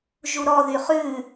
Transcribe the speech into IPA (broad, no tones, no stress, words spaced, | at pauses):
ʒuɾɔ ðyχʉ